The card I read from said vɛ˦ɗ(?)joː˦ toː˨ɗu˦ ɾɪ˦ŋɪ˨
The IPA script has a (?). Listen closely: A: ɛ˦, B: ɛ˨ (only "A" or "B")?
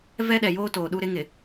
B